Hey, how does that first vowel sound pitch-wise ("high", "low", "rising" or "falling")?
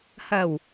low